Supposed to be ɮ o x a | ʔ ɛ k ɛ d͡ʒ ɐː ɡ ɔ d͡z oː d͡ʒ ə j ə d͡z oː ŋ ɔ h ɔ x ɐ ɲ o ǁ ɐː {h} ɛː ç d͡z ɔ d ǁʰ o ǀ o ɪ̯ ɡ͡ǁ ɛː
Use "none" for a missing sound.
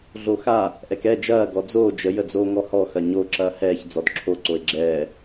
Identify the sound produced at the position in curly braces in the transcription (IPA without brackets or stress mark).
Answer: h